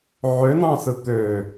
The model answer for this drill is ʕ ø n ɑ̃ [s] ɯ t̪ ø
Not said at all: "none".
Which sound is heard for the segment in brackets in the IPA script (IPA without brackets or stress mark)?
s